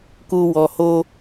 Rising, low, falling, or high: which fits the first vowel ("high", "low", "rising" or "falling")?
low